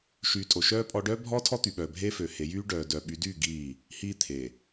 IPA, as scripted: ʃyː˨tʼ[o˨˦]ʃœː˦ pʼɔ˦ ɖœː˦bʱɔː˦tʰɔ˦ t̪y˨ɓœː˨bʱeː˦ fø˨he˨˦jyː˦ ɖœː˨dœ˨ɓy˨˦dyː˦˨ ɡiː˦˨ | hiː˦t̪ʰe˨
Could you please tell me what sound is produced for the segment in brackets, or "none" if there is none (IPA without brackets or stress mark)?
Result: o˨